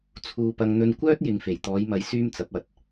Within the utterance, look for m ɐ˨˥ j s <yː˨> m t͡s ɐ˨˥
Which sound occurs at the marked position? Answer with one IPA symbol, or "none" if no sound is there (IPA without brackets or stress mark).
yː˥